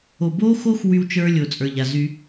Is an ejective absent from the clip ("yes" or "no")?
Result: no